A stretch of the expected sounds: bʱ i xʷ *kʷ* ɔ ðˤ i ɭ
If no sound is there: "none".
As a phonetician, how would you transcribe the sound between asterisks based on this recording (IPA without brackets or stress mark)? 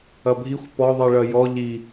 p